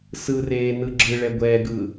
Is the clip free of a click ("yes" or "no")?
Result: no